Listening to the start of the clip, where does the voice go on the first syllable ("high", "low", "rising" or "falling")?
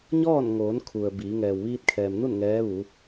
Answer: falling